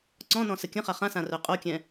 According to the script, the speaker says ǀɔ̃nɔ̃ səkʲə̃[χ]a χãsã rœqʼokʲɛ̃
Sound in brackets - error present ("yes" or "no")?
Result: no